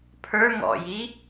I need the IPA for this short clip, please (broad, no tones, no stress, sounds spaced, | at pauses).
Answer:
pʰ ə˞ ŋ ɔ̰ j i